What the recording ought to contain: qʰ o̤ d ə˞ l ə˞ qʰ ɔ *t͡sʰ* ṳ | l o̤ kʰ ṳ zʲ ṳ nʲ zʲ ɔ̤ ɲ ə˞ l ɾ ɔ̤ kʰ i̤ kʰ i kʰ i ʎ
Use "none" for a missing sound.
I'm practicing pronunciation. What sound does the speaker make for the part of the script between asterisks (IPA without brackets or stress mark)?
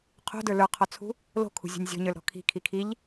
t͡sʰ